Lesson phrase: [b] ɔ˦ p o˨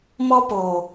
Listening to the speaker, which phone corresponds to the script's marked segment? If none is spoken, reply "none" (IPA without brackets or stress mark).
m